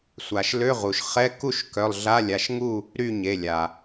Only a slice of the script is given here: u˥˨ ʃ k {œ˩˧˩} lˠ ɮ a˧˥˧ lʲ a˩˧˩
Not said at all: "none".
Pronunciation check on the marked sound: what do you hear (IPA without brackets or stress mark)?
œ˩˧˩